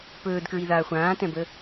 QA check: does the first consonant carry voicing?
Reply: no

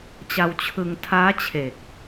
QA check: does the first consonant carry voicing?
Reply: no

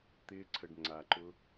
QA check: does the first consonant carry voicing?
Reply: no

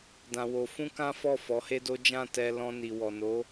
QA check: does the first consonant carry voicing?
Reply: yes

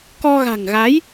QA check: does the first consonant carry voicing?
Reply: no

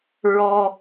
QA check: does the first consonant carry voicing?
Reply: yes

